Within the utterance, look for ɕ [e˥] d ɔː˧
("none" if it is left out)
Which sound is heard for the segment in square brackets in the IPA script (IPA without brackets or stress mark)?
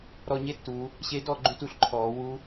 e˧˥